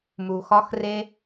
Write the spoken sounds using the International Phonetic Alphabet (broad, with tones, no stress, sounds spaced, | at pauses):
m u˨ x ɒ˦ x r e˦